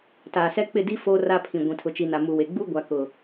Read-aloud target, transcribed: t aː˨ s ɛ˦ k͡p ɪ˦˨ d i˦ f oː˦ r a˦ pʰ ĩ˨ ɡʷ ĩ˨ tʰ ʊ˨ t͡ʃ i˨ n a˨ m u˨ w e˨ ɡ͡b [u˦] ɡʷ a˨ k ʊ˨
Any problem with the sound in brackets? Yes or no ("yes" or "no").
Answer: no